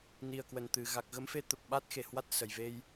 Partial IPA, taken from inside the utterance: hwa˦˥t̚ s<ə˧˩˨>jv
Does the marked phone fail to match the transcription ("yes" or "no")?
yes